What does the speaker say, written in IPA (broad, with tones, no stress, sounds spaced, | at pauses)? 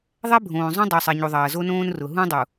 ðˤ ɛ˦ bʱ õː˨ zˤ õ˦ dˤ u˨ sˤ ɛ˨ ɲ u˨ ðˤ ɐː˨ z o˦ n õː˦ n r ʊ˨ ɦ ũ˦ dˤ u˨